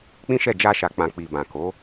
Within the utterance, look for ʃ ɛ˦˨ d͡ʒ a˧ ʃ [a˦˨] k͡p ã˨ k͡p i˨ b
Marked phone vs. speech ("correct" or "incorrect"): incorrect